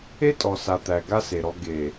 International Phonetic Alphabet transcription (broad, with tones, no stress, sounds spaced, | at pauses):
e˦ tʼ ɔ˨ s a˨ t̪ æ˨ ɡ a˦ s e˨ ɾ ɔ˦ ɡ e˨